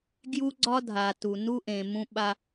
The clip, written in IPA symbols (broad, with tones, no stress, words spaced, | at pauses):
ɡju˦ɡ͡ǀɒ˦dʱa˨ tu˨nu˦ ʔẽ˨mũ˦ ɓa˦